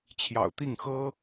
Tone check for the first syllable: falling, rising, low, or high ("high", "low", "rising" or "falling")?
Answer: low